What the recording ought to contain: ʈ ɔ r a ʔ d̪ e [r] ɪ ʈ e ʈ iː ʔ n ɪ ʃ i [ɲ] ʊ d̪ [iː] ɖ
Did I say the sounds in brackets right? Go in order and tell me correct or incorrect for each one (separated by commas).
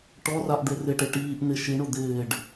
correct, incorrect, incorrect